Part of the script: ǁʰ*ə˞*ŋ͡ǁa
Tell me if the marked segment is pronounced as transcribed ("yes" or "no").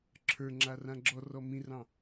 yes